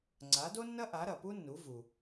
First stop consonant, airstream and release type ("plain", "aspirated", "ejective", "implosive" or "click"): click